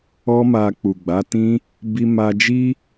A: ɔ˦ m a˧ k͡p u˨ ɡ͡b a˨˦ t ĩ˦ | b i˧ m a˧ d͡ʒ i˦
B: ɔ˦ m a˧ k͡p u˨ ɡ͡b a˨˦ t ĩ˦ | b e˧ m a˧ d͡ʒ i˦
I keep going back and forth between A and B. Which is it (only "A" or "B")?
A